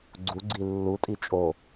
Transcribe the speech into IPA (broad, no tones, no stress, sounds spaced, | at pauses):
ɡ͡ǀ u ɡ͡ǀ i lː u tʼ i t͡ʃʼ o